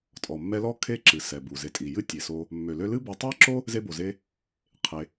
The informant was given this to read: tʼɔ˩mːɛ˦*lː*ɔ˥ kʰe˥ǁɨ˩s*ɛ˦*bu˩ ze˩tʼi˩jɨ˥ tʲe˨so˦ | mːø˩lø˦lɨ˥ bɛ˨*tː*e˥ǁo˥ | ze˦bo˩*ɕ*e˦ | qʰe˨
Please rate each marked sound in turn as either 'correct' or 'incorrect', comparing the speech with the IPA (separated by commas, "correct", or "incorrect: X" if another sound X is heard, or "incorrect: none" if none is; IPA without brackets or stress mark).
incorrect: l, incorrect: ɛ˩, incorrect: tˤ, incorrect: z